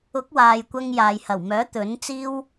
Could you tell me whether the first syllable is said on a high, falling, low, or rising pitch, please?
rising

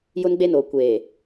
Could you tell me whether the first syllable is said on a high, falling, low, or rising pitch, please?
high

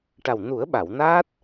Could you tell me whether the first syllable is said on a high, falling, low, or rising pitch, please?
low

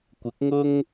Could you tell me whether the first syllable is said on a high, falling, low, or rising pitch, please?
rising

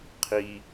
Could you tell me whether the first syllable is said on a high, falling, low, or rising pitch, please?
low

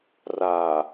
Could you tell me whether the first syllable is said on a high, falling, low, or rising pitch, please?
low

